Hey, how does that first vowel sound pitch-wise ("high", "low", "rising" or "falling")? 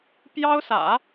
high